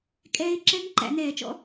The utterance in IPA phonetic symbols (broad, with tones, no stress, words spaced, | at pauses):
kʼɛː˧˥ɪ̯ ǁɛ˧˥ŋ ǃæ̰˧˩˧nɛː˧˩˧t͡ʃɔ̰˧˥